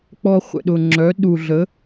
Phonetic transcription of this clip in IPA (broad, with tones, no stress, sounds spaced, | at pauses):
k͡p ɔ˧ χʷ ə̰˨ ɗ ʊ˨ ŋ͡ǁ œ˨˦ ɗ u˨ ɮ ə˨˦